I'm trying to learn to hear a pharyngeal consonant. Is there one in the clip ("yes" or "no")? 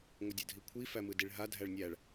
no